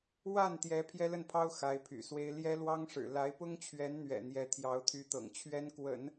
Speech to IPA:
wa˥˩nt̪jɛ˧˥ pʰjɛ˥lə˥˩npʰɑ˥ʊ̯ xa˧˥ɪ̯pʰy̰˨˩swe˥ɪ̯ ljɛ˥lwɑ˥ŋʂɻ̩˨˩ la˧˥ɪ̯pʊ˥ŋt͡ɕʰɥɛ˧˥nn̪ɥɛ̰˨˩ n̪jɛ˧˥t̪ʰjɑ˧˥ʊ̯t̪ʰy˧˥t̪ɤ̰˨˩ŋ t͡ɕʰɥɛ˥nkwə̰˨˩˦n

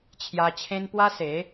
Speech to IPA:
t͡ɕʰja˧t͡ɕʰẽ˦n pwa˦se˨˦

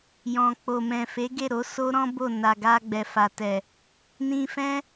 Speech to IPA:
jɔ̃˨k͡po˨mɛ̃˨ fe˨˦ɡe˦˨ɾo˨˦ so˦ɾɔ̃˦ bo˦˨ na˨ɡa˧ ɡ͡bɛ˨fa˨tɛ˨ | nĩ˧fɛ̃˦

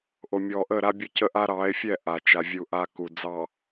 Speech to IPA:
ʔo˨mʲɔ˨ʔə˦˨ ɾa˦bʲə˦cə˦ʔa˦ ɾɑ˨˦e̯fʲɛ˦˨ ʔa˨t͡ʃa˨ vʲu˨ʔa˨ ku˨ d͡zɑ˨

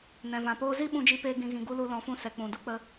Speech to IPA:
nɛ̃˨vã˨poː˧ zi˦ ɓũ˧d͡ʒi˧peː˧ ɡĩ˧ɣĩ˧ɡu˦ lu˧lɔ̃˨˦fũ˧ sɛ˨k͡pũ˨du˦k͡pə˧

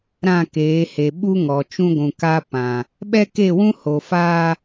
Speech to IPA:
ɾã˦˨keː˨˦he˨ ɓu˦ŋɔ˨t͡ʃũ˦ɡʷũ˨ ka˦pã˨ | ɓɛ˦ke˦˨wũ˦ ho˨ fa˦

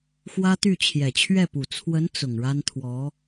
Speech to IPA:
xwä˥t̪y˥˩ t͡ɕʰjɛ˨˩t͡ɕʰɥɛ˥˩pu˨˩ t͡sʰwə˧˥n t͡sʊ˨˩ŋ ɻa˥nt̪ʰwɔ˧˥

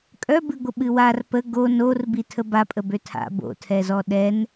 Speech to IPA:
kʼœbɨɡʷə ɓɨwar pə ɡo nor bitʰəbapʼə bøtʰa̰ bo̰tʰɛzɔ ɗɛn

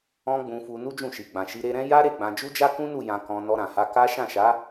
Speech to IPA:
ɔ̃˦ɡ͡bũ˧fu˧ nu˦d͡ʒũ˦˨ʃi˨ ɡ͡bã˨ʃi˧ ɾe˧ɾɛ̃˦ ja˦ ɾe˦˨ɡ͡bã˧ d͡ʒu˦d͡ʒa˦kũ˦nu˦˨ jã˧kɔ̃˧ nɔ˧ɾã˨ha˧ ka˦ ʃã˦˨ʃa˨˦

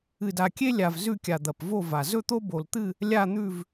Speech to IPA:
ɨ˨˩da˨˩kʲe˦lʲa˨˩v zʉ˥˨kʲa˨˩ d̪ɐ˨˩pvo˥˨va˨˩ zɵ˥˨t̪o˦bo˨˩lt̪ɨ˥˨ | lʲa˥˨n̪ʉ˥˨v

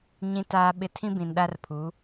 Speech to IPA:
ɲĩ˨ taː˨ɓɪ˨ tʰĩ˦bĩ˨nɗa˦rpʰu˨˦

